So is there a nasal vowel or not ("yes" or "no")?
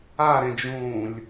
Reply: yes